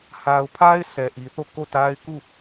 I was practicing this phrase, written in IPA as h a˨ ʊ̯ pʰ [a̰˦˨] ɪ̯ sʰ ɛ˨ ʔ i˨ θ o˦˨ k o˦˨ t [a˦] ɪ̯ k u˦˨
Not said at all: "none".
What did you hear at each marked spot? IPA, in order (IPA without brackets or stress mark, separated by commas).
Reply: a˦, a˦